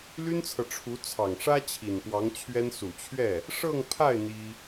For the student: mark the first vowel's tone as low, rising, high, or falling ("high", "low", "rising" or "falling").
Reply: high